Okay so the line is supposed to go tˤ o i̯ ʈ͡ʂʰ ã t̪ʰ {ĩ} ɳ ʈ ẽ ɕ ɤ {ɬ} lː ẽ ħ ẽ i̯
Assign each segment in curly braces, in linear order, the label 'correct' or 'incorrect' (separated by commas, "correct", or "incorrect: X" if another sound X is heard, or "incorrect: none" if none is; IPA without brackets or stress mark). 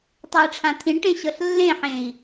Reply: correct, correct